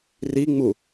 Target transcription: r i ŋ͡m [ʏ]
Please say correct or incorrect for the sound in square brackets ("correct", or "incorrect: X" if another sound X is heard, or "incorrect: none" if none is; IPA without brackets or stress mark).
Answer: incorrect: u